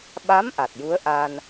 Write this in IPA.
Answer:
ɓa˧˥m ʔa˨˩t̚ju˧˥ə̯ʔa˧n

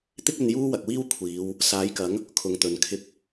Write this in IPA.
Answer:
t̪ɪ˥k̚ɵ˧n juː˥wɐ˨k̚wiː˥w kʷʰiː˨˧w | saː˨˥jkɐ˨˥ŋ | kʰʊ˨ŋt̪ɵ˨n kʰɪ˧k̚

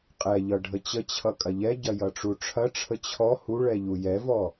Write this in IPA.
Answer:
qʼɛʎʌ ɖʱət͡ɕət͡ɕʰʌ kʼɐʎɛɟɐ jʌʈ͡ʂuʈ͡ʂʰɐʈ͡ʂʰə t͡ɕʰɔ huɭɛ ʎujɛvɔ

